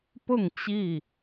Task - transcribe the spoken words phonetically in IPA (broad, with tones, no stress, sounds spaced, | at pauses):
p ʊ˥˨ ŋ t͡ɕ i˥˨